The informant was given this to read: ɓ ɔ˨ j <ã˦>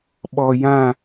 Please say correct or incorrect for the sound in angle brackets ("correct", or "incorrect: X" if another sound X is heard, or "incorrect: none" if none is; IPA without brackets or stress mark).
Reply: incorrect: ã˦˨